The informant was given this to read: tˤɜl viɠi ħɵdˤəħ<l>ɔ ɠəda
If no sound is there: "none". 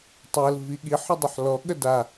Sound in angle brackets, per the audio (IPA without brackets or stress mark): l